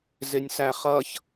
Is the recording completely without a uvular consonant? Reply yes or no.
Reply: no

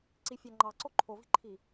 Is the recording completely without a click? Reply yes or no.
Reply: no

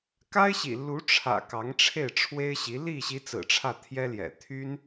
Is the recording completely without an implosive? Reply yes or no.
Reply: yes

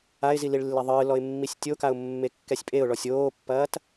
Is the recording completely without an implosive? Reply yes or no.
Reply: yes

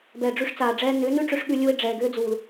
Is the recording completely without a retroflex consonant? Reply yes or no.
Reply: no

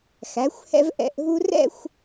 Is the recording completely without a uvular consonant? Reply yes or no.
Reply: yes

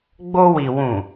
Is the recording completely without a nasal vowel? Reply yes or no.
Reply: no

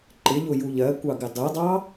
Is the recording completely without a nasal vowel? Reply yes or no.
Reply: yes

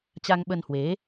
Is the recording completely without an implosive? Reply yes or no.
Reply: no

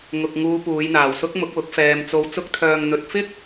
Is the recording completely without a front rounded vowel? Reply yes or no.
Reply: no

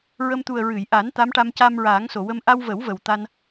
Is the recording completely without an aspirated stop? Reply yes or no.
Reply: yes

